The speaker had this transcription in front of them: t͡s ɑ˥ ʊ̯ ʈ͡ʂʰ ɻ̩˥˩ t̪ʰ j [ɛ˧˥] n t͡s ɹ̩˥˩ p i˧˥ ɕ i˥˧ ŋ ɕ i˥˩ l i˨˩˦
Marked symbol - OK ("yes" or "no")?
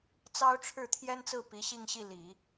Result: no